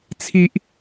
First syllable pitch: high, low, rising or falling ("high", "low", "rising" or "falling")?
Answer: high